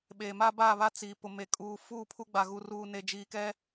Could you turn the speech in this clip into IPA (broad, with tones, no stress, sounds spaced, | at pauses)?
ɓ eː˨ m a˦ b a˦˨ β a˦ t͡s iː˨ p ʊ˨ m e˨ kʼ uː˨ f uː˦˨ pʰ u˦ ɡ͡b a˨ ɣ u˨ r uː˨ n e˨ d͡ʒ iː˨ k ɛ˦